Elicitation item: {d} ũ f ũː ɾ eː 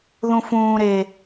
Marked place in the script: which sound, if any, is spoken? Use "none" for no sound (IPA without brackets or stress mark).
ð